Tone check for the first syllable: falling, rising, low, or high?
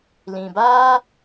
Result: low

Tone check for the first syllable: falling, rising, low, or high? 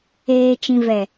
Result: low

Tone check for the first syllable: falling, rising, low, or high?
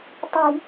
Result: low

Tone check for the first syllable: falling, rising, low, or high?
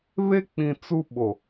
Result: high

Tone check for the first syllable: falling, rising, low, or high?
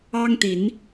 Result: high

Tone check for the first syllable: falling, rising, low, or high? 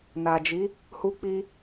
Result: low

